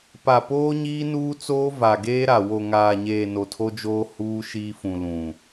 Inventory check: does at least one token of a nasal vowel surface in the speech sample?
yes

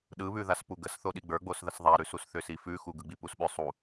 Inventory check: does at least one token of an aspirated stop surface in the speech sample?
no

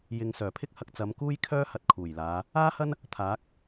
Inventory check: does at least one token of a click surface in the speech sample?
no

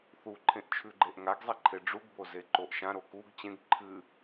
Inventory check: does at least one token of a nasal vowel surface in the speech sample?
yes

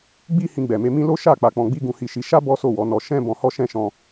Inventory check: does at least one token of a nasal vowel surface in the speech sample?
yes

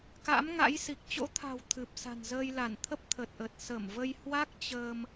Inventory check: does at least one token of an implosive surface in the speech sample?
no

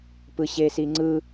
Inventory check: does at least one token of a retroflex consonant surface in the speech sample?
no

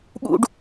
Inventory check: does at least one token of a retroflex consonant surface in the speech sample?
yes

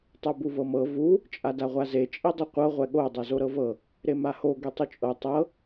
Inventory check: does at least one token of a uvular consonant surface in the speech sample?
yes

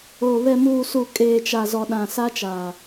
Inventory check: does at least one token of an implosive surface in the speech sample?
yes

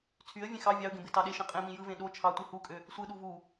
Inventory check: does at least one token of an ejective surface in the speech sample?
yes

